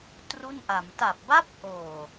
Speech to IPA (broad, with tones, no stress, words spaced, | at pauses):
tru˥˩nʔa˩˦m ta˨˩p̚ba˦˥p̚ʔoː˨˩